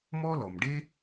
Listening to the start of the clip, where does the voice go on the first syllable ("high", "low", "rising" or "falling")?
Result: high